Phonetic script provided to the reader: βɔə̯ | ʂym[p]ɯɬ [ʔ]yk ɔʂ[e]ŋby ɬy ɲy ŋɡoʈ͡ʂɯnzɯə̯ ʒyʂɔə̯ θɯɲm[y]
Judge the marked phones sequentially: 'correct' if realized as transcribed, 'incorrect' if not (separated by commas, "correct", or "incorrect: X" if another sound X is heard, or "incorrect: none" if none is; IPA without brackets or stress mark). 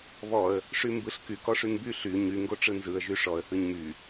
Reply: incorrect: b, incorrect: k, incorrect: y, correct